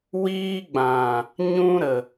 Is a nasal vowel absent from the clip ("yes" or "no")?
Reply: no